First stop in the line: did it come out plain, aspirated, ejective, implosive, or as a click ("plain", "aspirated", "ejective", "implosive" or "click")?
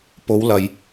plain